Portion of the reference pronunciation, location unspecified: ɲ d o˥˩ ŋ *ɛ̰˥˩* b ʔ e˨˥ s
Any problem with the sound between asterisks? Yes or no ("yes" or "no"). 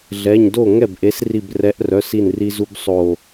yes